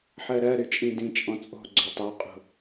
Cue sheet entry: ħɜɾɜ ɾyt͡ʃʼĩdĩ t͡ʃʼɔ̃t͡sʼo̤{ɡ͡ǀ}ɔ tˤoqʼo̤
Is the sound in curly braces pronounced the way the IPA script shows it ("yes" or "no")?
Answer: yes